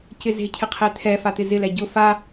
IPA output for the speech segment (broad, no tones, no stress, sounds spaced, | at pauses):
c ɪ z e̤ cʰ ɪ qʰ e t̪ʰ ɛ f a t̪ ɪ z ɪ l ɛ ɟ ʊ f a